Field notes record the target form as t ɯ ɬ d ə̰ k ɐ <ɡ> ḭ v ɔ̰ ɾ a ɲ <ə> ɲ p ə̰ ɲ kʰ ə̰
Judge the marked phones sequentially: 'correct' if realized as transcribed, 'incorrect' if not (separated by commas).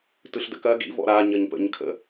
correct, correct